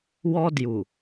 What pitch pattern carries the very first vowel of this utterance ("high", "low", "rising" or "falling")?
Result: high